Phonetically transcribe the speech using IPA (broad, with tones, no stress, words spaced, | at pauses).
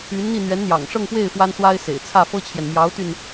y˧˥nn̪i˥˩ n̪ɥɛ˧˥nn̪jɑ̰˨˩ŋʂɤ˥˧ŋpwe˥˩ɪ̯ fwa˥nswa˥ɪ̯sḛ˨˩ɪ̯ t͡sʰä˥˩fɤ˥t͡ɕʰjɛ˨n mjɑ˧˥ʊ̯t̪y˧n